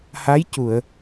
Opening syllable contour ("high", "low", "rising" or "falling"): rising